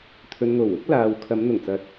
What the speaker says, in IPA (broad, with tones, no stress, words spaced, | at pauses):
t̪ʰɵ˨nŋo˨˩wʊ˨˥k̚ laː˨wkʰɐ˨˧m n̪ʊ˨˩ŋt͡sɐ˨˥t̚